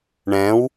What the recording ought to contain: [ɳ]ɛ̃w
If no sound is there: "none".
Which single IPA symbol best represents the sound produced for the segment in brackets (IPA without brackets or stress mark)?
ɳ